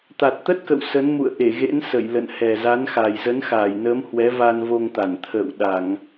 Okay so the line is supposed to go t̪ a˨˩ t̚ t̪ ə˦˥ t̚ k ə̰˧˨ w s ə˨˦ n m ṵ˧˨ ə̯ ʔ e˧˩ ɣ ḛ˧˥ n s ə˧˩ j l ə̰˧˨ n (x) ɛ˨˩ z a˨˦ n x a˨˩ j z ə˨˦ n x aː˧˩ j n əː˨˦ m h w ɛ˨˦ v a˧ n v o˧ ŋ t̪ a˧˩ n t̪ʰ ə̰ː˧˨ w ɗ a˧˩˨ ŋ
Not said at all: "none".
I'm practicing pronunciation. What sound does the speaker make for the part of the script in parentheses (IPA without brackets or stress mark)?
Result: h